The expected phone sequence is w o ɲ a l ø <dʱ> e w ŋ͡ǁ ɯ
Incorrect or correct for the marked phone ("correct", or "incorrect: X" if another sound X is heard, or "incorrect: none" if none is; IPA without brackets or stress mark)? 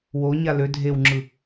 correct